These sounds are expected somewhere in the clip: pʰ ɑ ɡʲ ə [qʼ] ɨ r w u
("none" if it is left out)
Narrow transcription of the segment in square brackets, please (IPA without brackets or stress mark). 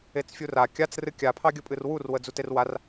pʼ